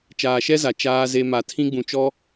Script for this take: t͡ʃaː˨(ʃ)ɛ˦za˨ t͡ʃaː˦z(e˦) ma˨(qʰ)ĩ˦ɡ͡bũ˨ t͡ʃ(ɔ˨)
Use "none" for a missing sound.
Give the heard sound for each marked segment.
ʃ, e˦, tʰ, ɔ˦

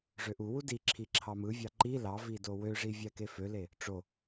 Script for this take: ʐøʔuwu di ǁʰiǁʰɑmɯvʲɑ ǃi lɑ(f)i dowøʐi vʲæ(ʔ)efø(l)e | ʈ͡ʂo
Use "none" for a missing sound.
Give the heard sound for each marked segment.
v, k, l

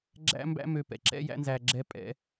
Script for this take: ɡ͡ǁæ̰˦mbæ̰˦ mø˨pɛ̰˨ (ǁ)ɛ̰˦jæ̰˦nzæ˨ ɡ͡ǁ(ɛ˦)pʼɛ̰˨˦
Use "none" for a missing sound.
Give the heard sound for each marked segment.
ǁ, ɛ˦

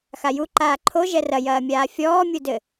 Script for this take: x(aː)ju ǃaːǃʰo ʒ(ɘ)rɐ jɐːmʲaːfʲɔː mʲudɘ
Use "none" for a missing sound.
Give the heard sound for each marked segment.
a, ɛ

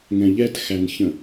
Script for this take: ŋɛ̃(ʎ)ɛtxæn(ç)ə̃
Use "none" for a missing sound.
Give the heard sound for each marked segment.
ʎ, ç

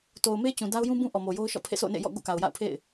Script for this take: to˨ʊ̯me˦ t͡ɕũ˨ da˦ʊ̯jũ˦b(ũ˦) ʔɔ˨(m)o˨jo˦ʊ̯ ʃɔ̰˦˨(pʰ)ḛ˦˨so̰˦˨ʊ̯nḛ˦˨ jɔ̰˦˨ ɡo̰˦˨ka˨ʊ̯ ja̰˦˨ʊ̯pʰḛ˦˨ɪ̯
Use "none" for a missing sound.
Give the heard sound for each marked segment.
ũ˦, m, pʰ

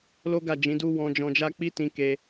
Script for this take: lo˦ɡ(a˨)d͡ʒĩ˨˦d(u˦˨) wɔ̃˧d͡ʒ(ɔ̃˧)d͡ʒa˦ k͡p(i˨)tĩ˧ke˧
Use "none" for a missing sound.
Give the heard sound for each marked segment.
a˦˨, u˦, ɔ̃˧, i˦

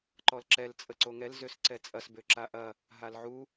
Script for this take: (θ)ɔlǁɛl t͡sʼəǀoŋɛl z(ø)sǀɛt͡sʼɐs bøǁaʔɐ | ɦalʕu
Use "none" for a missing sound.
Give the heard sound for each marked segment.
ǃ, ø

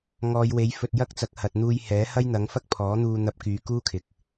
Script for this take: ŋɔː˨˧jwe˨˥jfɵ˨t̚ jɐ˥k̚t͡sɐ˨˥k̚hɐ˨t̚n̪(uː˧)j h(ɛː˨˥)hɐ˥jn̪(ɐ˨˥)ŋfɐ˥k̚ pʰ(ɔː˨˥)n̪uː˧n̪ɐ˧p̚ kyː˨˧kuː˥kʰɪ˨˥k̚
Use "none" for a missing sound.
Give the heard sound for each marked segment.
uː˧, ɛː˨˥, ɐ˨˥, ɔː˨˥

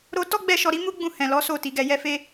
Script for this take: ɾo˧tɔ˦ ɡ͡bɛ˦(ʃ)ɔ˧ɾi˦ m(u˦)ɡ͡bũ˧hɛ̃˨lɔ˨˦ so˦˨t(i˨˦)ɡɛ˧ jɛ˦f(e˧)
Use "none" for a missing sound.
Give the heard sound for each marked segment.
ʃ, u˦, i˨˦, e˦

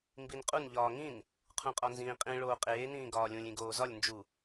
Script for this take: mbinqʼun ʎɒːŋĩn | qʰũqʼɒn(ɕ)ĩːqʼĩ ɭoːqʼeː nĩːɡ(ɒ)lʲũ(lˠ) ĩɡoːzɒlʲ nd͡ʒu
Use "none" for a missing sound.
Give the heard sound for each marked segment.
z, ɒː, lʲ

